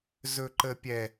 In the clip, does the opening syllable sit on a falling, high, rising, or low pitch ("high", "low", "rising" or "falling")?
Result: high